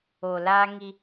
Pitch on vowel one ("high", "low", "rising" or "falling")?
low